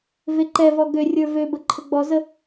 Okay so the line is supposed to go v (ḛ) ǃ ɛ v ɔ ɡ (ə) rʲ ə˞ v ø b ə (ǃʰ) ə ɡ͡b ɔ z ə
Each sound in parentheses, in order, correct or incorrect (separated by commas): incorrect, incorrect, correct